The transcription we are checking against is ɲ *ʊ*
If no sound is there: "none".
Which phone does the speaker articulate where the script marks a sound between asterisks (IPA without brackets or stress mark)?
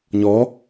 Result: ɔ